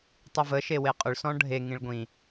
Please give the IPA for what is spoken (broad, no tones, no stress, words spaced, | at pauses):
tˤivə ʃeweqʼɵɭ sɔ̃ɖʱe ŋĩɭɡʷĩ